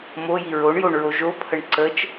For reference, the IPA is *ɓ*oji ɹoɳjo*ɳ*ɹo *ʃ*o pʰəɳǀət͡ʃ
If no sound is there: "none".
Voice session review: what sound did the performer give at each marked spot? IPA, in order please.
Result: m, ɳ, ʒ

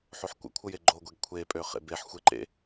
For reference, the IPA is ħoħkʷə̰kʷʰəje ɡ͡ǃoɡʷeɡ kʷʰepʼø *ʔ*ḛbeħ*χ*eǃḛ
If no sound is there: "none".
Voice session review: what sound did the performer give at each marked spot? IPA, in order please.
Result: χ, xʷ

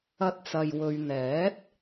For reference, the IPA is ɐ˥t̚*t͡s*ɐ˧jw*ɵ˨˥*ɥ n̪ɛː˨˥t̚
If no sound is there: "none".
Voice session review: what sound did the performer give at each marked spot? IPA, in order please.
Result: t͡s, ɵ˧

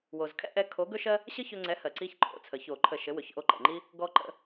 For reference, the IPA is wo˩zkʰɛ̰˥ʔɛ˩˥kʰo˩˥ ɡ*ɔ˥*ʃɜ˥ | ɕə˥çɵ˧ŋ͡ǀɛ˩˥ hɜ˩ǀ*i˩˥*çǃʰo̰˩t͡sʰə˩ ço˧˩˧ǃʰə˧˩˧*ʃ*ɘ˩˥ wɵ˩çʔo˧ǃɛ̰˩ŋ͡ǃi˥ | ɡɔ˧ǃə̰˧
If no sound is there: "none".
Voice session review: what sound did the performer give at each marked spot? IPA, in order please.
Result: ɵ˥, i˧, ʃ

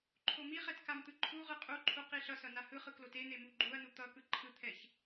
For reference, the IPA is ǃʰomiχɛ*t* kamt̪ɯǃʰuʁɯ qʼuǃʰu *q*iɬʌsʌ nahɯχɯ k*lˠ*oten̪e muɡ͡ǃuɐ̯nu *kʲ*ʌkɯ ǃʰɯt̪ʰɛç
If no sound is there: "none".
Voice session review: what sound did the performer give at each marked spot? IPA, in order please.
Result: t, q, l, t̪

